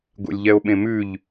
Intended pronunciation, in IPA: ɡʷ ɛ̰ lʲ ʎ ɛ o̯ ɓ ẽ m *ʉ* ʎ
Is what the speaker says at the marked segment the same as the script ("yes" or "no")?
yes